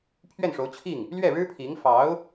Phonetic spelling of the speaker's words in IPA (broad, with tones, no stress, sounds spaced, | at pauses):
pʰ ɥ ɛ˥˩ n ʂ o˧˥ ʊ̯ t͡ɕʰ i˥˩ ŋ | l ɥ ɛ˥˩ ɻ ɻ̩˥ pʰ i˧˥ ŋ f ɑ˧˥ ʊ̯